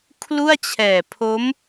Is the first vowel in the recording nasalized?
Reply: no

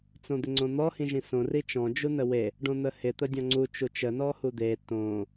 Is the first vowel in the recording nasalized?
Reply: yes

